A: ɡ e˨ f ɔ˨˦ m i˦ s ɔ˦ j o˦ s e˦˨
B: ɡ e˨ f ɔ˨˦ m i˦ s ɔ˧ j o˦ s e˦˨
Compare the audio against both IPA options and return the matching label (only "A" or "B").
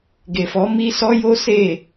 A